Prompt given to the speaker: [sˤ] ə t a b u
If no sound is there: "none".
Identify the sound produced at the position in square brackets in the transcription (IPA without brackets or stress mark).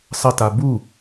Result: sˤ